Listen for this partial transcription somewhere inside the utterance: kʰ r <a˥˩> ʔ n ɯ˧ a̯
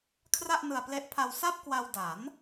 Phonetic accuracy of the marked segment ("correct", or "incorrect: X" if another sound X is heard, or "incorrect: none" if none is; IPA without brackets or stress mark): correct